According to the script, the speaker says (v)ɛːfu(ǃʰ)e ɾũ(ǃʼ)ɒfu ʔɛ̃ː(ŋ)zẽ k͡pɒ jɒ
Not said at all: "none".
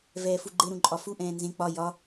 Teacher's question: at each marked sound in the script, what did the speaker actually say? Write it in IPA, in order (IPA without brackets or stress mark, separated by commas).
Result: v, ɡ͡ǃ, ǃʼ, n